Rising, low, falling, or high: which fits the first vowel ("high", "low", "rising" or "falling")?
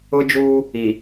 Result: high